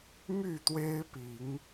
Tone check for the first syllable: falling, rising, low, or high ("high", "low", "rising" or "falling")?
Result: falling